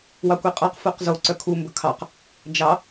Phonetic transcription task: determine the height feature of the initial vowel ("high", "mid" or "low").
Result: low